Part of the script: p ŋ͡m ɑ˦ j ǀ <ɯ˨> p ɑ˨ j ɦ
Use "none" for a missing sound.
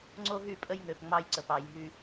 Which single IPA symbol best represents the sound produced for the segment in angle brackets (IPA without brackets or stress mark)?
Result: ə˨